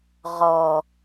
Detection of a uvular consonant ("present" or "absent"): present